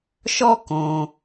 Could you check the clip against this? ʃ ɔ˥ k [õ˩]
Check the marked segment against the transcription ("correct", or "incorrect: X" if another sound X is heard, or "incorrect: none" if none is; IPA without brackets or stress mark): correct